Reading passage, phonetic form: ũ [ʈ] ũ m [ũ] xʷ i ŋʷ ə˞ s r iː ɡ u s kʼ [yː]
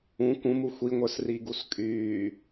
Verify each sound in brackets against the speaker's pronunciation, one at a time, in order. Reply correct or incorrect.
incorrect: k, incorrect: u, correct

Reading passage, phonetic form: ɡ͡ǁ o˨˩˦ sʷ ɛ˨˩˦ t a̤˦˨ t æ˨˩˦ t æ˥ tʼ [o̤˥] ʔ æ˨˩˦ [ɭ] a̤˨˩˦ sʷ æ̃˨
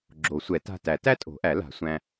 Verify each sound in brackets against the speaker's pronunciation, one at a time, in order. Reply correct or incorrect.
incorrect: o̤˨˩˦, incorrect: l

